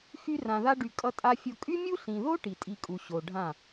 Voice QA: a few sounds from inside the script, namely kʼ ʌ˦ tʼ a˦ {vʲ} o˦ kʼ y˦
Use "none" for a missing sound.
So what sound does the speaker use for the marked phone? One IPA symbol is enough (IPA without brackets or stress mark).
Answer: fʲ